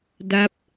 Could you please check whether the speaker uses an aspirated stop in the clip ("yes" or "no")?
no